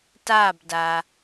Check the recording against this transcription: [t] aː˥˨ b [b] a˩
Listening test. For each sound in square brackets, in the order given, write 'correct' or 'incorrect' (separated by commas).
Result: correct, incorrect